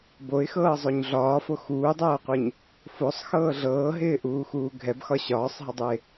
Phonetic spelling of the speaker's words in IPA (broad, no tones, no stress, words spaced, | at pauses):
boɪ̯xɤːzˤoɲ ɮɒːfo xuːdˤɤːqʷeɲ | fosˤxɤː ɮɤːɦɪːʔuːxuː ɡʱɛbxɒ ɕɒːsˤɦədˤuɪ̯